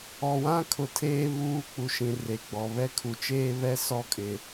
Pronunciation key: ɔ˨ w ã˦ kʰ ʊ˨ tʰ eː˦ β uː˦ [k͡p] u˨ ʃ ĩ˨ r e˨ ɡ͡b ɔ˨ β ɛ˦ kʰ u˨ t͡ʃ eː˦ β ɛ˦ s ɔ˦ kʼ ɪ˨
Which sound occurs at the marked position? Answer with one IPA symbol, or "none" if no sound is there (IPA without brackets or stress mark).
k͡p